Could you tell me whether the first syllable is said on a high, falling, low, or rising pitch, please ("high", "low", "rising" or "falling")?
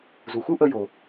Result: low